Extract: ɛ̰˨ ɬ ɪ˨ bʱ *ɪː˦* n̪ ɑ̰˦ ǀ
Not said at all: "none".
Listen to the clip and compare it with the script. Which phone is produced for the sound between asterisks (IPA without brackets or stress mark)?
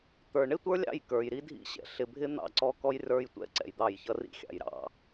ɪ˦